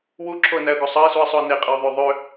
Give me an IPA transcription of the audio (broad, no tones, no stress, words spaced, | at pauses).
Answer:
wuǁʰoə̯næə̯ɡo sˤɑɪ̯suə̯sˤoə̯ neqʼeʊ̯ðˤø ðˤø